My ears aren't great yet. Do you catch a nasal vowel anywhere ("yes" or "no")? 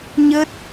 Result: no